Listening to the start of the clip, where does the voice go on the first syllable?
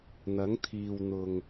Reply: rising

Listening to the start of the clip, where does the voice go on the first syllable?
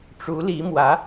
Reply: rising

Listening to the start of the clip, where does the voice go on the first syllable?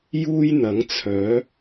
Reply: high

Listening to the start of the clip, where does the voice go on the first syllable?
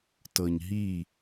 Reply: low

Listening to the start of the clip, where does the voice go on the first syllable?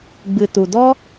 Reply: low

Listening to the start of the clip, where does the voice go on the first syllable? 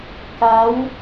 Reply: rising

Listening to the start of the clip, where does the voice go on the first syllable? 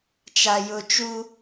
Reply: low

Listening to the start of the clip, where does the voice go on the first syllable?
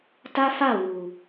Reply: high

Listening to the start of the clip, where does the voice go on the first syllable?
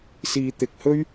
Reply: low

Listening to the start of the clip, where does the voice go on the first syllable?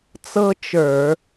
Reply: high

